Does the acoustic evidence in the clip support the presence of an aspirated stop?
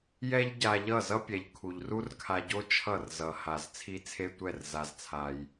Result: yes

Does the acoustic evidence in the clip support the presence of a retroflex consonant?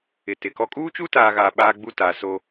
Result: no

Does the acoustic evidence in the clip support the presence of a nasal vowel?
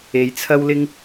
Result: no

